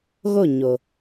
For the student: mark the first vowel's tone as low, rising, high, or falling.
falling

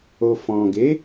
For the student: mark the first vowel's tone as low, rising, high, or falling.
low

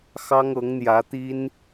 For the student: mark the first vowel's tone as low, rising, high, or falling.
high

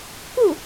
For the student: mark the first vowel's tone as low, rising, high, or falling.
falling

